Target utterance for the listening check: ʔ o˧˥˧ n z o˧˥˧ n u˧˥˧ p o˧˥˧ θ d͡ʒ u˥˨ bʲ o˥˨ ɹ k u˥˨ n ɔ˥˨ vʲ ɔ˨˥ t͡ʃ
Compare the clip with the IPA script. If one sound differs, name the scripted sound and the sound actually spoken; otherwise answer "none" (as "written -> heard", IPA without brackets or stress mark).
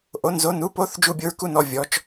none